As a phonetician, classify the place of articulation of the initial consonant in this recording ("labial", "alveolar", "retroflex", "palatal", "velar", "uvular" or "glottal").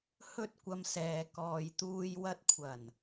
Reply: glottal